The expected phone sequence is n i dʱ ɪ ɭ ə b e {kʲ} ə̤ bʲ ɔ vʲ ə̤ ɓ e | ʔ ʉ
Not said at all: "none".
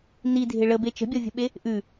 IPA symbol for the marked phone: t͡ʃ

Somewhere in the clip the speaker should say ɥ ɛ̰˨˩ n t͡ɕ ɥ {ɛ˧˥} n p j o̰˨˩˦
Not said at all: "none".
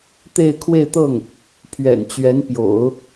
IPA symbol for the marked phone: ɛ˧˥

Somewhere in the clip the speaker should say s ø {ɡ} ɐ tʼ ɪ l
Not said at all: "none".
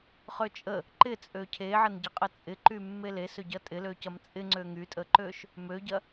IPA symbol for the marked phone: ɟ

